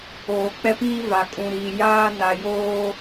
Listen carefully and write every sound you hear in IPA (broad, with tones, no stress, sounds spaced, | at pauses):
oː˨ k͡p ɛ˦ p iː˦ v a˨ kʼ ũ˨ ɾ iː˨ j aː˦ n a˨ j oː˦